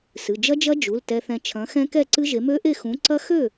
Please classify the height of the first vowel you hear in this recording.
high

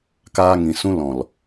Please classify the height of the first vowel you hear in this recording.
low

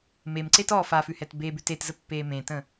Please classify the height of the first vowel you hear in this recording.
mid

